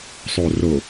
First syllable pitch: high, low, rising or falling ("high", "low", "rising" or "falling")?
low